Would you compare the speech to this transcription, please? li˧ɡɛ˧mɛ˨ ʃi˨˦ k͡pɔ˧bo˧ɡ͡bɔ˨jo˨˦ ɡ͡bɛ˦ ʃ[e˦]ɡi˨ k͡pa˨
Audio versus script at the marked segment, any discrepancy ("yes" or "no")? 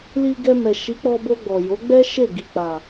yes